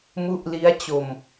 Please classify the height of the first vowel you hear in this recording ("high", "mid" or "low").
high